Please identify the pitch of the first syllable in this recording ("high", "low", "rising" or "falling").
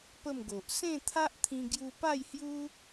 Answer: falling